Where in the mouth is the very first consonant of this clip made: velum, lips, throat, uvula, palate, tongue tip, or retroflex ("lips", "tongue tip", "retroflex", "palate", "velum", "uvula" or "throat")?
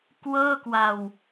velum